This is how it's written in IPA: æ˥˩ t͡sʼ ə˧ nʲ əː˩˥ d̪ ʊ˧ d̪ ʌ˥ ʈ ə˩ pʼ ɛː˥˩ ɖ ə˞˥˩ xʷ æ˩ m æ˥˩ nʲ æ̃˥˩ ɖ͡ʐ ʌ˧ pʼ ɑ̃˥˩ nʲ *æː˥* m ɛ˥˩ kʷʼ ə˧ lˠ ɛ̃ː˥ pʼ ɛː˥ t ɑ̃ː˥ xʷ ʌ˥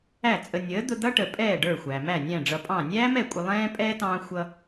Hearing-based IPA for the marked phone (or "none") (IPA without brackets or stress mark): æː˥